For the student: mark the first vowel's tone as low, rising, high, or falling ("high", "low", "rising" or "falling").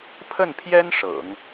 falling